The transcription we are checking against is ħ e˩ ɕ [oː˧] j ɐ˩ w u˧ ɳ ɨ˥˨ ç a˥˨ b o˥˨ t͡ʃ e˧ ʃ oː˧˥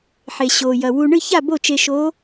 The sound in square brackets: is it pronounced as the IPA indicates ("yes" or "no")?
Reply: no